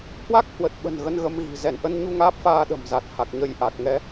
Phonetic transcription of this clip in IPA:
hwa˦˥k̚hwə˨˩t̚ ɓə̤˨˩n ɣə˧nɣə˧mɣi̤˨˩ zɛ˧˩nʔə˧nɲu˧ ŋaː˦˥p̚faː˧ɗə̤˨˩mza˨˩t̚ ha˨˩k̚ɲə˧jʔa˨˩k̚ ŋɛ˨˦

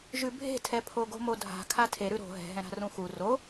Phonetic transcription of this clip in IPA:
ʒʉbʱe̤tʰɛpʰo ɡo̤modʱa̤ kʰatʰe ɾʉɾo̤ ɦɛ̤ɦɛ̃ ɾa̤rũxu ro

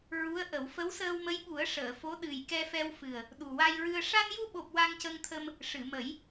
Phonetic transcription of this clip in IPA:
ɹu˧˥ə̯ ʔə˨˩˦w fə˧˥wsəː˧wmə˧˥jɓu˨˩˦ə̯ ʂəː˨˩˨ fo˧˥ ɗɨ˨˩jkɛ˧fɛ˧wfɨ˨˩ə̯ | ɗu˨˩wa˧jɹɨ˧ə̯ ʂa˧nju˧ɓo˨˩p̚ wa˧ŋcə˧ŋt̪ʰə˧m | ʂɨ˨˩˨ mə˨˩˦j

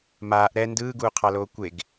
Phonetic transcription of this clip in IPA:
maːʔ ɾɛ ndɯːɡuːqʰɑloː kʷeɡ

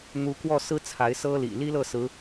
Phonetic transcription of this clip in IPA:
n̪u˨˦ kwɔ˥˨sɹ̩˦ t͡sʰa˨˦ɪ̯sɤ˦lḭ˨˩ li˦lɤ˥˨ sɹ̩˨˦

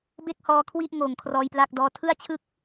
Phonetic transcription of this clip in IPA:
be˥˩k̚hɔː˧kʰwi˥˩ʔ ŋoː˨˩ŋkʰrɔː˧jplaː˥˩k̚dɔː˦˥ tʰɯ˥˩a̯t͡ɕʰɯ˥˩k̚

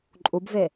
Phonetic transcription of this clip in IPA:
ǃʼubve

